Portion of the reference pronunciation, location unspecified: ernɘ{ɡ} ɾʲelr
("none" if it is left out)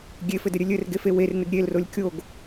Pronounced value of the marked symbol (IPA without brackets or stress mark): ɡ